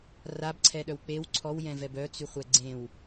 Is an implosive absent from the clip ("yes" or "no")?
no